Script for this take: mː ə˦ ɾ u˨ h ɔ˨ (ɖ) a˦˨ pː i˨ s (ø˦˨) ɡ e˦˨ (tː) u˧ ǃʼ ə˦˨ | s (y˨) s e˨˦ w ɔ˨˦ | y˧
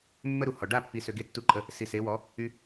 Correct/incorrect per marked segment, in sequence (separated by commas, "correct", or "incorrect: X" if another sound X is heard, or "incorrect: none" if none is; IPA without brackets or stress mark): correct, incorrect: ø˨, correct, incorrect: i˨